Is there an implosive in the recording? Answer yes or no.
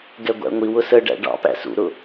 no